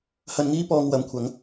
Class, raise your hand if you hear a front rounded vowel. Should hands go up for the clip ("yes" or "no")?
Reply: no